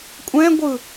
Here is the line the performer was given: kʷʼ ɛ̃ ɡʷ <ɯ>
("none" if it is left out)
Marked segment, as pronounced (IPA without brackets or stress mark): ɯ